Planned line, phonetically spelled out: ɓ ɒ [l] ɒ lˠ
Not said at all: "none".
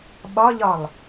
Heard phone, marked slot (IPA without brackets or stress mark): ʎ